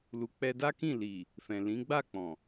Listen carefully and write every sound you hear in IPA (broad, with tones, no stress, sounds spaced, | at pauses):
l u˨ k͡p ɛ˧ d a˦ k ĩ˦˨ l i˨ | f ɛ̃˨ l ĩ˨˦ ɡ͡b a˦˨ k͡p ɔ̃˨